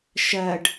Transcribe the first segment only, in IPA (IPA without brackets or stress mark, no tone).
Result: ʃ